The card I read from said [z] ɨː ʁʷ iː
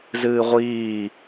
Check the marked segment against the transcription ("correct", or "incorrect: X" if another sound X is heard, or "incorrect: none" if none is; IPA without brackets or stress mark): correct